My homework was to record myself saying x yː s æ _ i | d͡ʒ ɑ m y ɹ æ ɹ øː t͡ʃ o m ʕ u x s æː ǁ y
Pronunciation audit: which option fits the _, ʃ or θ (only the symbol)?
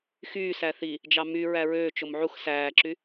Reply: θ